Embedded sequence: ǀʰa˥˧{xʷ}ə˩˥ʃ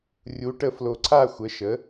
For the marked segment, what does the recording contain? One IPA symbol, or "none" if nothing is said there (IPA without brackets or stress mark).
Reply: xʷ